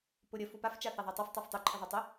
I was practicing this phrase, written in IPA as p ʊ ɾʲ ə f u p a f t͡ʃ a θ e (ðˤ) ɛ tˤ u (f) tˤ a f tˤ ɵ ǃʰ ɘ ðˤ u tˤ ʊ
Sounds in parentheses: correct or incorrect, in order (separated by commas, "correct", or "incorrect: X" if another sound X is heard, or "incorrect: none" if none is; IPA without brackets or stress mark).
correct, correct